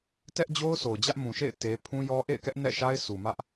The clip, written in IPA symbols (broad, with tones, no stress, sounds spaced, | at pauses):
t ɛ˦ ʔ d͡ʑ o˦ ʊ̯ s o˨ ʊ̯ d͡ʑ ä˦ ʔ m ũ˨ ʃ ḛ˦˨ ɪ̯ t e˦ pʰ ũ˦ j ɔ˦ ʔ ḛ˦˨ ɪ̯ k ɛ˦ ʔ n ɛ̰˦˨ ʃ a˦ ɪ̯ sʰ u˨ m ä˦ ʔ